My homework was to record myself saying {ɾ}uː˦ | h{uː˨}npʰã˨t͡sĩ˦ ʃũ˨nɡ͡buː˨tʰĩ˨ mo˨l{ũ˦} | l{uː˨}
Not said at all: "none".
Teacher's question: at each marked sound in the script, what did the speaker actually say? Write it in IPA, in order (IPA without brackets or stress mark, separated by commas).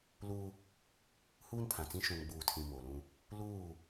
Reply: l, uː˦, ũ˦, uː˦˨